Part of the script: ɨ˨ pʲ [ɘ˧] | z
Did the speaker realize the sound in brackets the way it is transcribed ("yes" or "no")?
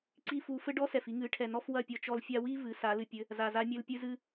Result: no